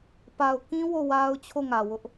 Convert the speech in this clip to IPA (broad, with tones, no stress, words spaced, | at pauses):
pa˨ʊ̯kĩ˦ wo˦˨wa˦ʊ̯t͡ɕʰo˦˨ŋä˨ wʊ˦ʔ